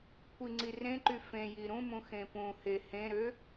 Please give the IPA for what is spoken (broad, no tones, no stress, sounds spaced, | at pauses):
kʷʰ i ŋ͡ǀ i r ẽ ǃ y f ẽ j i ɾ ũ m ũ x ẽ p ũ h e h ẽ ɾ ø